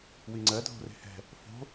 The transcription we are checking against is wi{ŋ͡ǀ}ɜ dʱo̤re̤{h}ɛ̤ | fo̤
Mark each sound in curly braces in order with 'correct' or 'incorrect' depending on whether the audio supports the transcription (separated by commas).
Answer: correct, correct